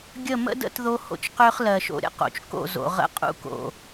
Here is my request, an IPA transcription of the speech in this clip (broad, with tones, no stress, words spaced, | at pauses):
ɡʲə˦˨ mə̰˦də̰˦t ðo˦ho̰˦t͡ʃqø˦χ lɜ˨ʃo̰˨ ɾʲə̰˦qo̰˨t͡ʃ ko̰˦˨zo̰˨ ʁə̰˦qʼṵ˦ko̰˨